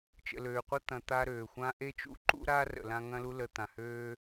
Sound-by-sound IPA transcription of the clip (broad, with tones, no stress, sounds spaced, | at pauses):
t͡ʃ ə̰˨ l øː˨ qʷ ɐ˥ t̪ ɐ̃˨ t̪ a˦ ɾ øː˩ xʷ ã˥ ʔ e˥ t͡ʃ ṵ˦ ǃ ṵ˥ ɾ a˥ r ə̰˩ l ã˥ ŋ ɐ̃˥ l u˥ l ə˨ t̪ ã˩ h øː˥